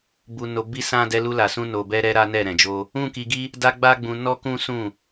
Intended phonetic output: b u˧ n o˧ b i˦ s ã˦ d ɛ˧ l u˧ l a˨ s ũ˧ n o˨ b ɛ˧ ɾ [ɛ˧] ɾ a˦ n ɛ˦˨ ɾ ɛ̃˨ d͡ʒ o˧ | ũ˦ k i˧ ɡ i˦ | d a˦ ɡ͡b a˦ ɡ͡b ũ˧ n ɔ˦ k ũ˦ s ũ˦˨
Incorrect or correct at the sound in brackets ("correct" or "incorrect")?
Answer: correct